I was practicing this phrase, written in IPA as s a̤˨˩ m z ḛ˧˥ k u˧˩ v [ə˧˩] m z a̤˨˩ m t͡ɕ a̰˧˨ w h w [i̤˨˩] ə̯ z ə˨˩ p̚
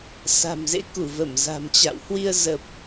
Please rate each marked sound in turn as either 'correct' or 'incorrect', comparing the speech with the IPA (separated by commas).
correct, incorrect